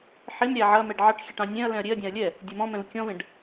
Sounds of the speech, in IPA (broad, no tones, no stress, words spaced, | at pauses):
ħemɾʲæ ʕɐmɛɖ ʕɑʈxʲɛʈ ɑ̃nʲɛ̃ɐ̯lɛ̃ɐ̯ ɾʲeɐ̯dʲɑ̃ɐ̯ lʲɛ | dʲɛmɔ̃mɛ̃v kʲɔ̃vẽɖ